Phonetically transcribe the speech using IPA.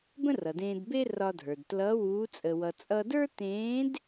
b ə̃˥ r ʌ˩ d ẽː˧ d b e˥ r ɒ˧ dʱ ə˞˩ d t l ʌː˧˥ w uː˧˥ t͡sʼ ə˧ w ʌ˧ t͡sʼ ʌ˥ d ə˞˥ t ẽː˧˥ d

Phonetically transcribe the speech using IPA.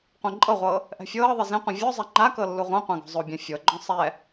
qʷ ẽ ǃʼ ɤ ʁʷ ɤː | ʔ ɛ̤ fʲ ɤː ðˤ i z ẽ qʷ ĩ vʲ ɔ zˤ ɛ ŋ͡ǃ a k ɤ lː u ʁʷ ã qʷ ã ɡ ɔ̤ zˤ o bʲ ɛ̃ fʲ ɤ ɡ͡ǃ ɔ̃ sˤ ɛ

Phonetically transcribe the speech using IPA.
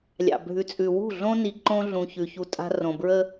lʲ ɑ̰˨ bʱ ʉ˨ t͡sʼ ʉ˨ w ṳ˦˨ ɮ õ˦ n i˨ ǃ õ˦ ɮ ũ˨ ç ʉ˨ ç u˦ tʼ a̤˦ r õ˨ b ɹ ə˦

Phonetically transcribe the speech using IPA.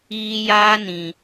iː˦ j aː˦ n ĩ˨

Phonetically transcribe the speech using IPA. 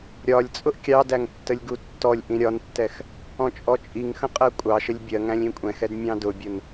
ɾʲ ɒ lʲ t͡sʼ ʊ ʔ kʲ ɑ d æ ŋ tː ə lʲ ɡ u tː ɔ lʲ ʔ ĩ ɾʲ ɒ n tː ɛ x | ɔ̃ t͡ʃʼ ɔ t͡ʃʼ i ŋ x ə̃ qʼ ɜ kʷʼ ɑ ʃ ə lʲ bʲ ɜ ŋ æ̃ lʲ ĩ kʷʼ ɛ̃ x ɛ d mʲ ɑ̃ d ʊ bʲ ʊ n

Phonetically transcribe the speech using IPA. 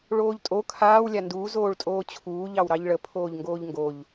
ɭ oː ʎ tʼ o kʰ aː w lʲ a n d uː z oː ɭ tʼ oː t͡ɕʰ uː ʎ ɑ w ɾ ɑ ʎ ɭ ə pʰ oː ʎ ŋ ɡ oː ʎ ŋ ɡ o ʎ

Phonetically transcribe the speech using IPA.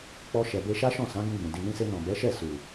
k͡p ɔ˧ ʃ ɛ˨ b e˧ ʃ a˦ ʃ ɔ̃˦˨ s ã˨˦ ɡ ũ˧ ɡ͡b ũ˨ d i˨ n ĩ˧ s e˧ n ɔ̃˨ b ɛ˨˦ ʃ ɛ˦˨ s u˨

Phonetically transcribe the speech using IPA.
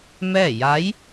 m ɛː˥˨ j a˧˥ j

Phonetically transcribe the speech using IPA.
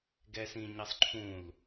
ɡ ɛ s ĩ ɲ ɜ sˤ ǃʰ ũ l

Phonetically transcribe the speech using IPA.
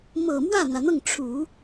m ɤ˨˩ m w ä˥˩ n̪ ä˩ n̪ ɤ˥˩ ŋ ʈ͡ʂʰ u˨˩˦

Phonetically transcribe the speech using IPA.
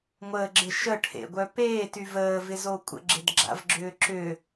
ŋʷ əː ɡ͡ǁ ɪ ʃ ə ʈʰ ḛ ɡʷ œ p eː t y v əː v ɪ z o kʷʼ ə̰ ɡ͡ǁ ɪ d ɡ͡ǁ a̰ v ɡ͡ǁ ʏː ǁ ʏ

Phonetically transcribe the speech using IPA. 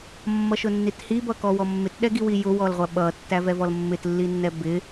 mː ʌ ʃ ʊ nː i t h i b ʌ k ɔ w ɔ mː ɪ t ɗ ɛ ɡ i w i j ʊ w ɔ l ʁʷ æ ɓ ʌ tː æ v ɛ v ɔ l mː ɪ t lː i nː ɛ b ɪ

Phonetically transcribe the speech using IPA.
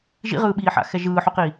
ʒ ḭ ʁ ɯː ɓ iː ħ a̰ x ɛ ʒ ɯː ħ u q iː

